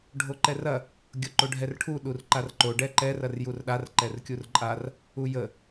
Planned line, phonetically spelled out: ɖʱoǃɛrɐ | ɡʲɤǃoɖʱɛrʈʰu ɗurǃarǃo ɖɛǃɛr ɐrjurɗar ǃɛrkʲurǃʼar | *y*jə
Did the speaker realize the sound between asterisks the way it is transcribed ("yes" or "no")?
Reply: no